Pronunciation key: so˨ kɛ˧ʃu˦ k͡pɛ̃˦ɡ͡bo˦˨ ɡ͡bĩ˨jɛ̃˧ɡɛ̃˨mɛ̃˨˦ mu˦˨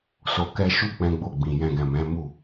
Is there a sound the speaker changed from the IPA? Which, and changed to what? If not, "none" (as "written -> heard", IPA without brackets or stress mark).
none